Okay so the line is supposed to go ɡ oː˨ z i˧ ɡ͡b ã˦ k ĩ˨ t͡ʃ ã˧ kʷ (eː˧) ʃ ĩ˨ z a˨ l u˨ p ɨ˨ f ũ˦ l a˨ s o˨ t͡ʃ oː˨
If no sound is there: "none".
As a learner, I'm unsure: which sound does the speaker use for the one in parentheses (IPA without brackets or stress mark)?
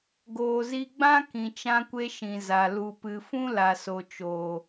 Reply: e˧